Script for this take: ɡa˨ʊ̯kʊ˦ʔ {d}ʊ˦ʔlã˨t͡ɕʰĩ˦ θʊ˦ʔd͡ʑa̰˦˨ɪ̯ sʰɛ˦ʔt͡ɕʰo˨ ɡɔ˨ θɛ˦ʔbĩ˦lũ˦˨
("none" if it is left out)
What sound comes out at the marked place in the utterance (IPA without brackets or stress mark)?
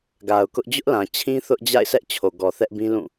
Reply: d͡ʑ